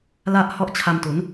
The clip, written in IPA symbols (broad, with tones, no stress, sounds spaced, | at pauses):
l a˥˩ ʔ h ɔ˥˩ ʔ t͡ɕʰ a˧ m t u˩˦ n